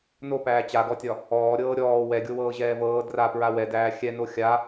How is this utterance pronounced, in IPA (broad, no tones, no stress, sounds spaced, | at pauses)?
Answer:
n o p æː t͡ɕ a ɡ ɔ tʲ ɒ | ɔː ɾʲ ɤː ɾʲ ɔː w ɛ ɡʲ o w ɤː ʑ ɛː v ɤː d r a p ɹ a w ɛ d æː xʲ ɛ n o xʲ a